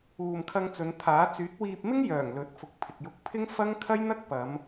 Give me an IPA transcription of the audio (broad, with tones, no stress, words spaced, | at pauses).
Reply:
uː˨mkʰɐ˧ŋt͡sɵ˨˧nt̪ʰaː˨˥ t͡syː˨˥t̚wiː˧p̚mɪ˥ŋjœː˨˩ŋ lɵ˨˥t̚ fʊ˨k̚pʰɪ˨k̚jʊ˧k̚pʰɪ˥ŋ fɐ˥ŋ kʰɐ˥jn̪ɐ˥k̚ pɐ˨˧m